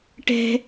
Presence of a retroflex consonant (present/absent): present